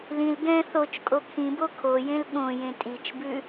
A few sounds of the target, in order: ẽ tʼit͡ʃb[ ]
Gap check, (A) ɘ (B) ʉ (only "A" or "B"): B